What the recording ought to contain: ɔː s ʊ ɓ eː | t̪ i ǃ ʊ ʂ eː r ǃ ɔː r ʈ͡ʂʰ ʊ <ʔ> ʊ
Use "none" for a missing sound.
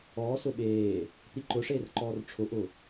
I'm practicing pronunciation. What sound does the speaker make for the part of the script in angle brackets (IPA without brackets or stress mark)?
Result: ʔ